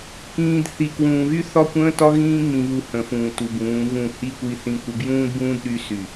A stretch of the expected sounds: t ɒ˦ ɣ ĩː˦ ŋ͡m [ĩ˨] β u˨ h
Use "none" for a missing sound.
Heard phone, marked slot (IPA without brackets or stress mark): ĩ˨